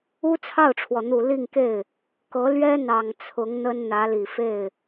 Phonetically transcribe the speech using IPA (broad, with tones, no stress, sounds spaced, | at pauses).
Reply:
u˥ t͡sʰ ɑ˥˩ ʊ̯ ʈ͡ʂʰ w ɔ˩ n̪ u˨˩ l i˥˧ ŋ k e˥˩ ɪ̯ | k ɤ˧˥ l ɥ ɛ˥ n̪ ɑ˨˩ ŋ t͡sʰ ʊ˧˥ ŋ n̪ ə˥ n n̪ ä˧˥ l i˨˩ f e˥˩ ɪ̯